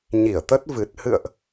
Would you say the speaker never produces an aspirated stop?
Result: yes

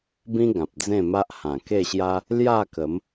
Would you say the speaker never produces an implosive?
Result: yes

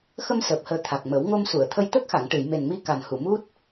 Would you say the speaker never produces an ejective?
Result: yes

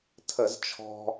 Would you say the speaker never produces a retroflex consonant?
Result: yes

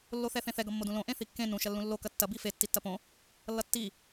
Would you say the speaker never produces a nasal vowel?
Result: no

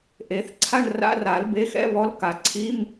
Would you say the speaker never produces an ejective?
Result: yes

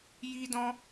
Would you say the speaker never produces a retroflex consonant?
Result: yes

